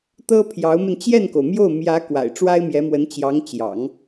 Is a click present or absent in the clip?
absent